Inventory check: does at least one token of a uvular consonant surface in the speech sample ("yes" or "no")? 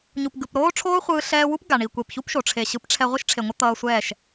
yes